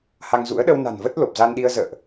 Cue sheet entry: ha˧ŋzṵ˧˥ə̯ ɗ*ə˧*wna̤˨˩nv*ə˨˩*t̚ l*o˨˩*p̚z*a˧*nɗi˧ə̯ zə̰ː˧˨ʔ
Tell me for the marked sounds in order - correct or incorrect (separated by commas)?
correct, incorrect, correct, correct